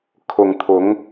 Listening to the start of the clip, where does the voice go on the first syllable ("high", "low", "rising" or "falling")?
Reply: low